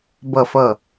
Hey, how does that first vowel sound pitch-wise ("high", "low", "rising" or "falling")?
low